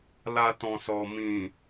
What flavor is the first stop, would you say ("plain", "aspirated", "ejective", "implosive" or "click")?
plain